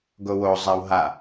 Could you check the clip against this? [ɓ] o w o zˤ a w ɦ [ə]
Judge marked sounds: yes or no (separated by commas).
no, no